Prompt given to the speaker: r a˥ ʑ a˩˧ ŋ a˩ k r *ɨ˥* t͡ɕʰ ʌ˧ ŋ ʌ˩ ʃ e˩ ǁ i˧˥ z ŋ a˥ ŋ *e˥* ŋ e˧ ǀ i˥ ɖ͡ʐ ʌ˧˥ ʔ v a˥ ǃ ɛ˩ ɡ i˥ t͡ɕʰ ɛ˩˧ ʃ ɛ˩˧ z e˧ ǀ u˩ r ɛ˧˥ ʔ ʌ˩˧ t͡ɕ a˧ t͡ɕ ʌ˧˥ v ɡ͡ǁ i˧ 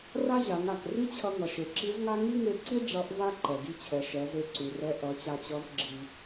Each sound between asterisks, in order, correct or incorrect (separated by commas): incorrect, incorrect